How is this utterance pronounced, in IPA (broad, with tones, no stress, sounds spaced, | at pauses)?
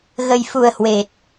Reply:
ɣ ə˨˩ j f u˨˩ ə̯ h w e˨˩ t̚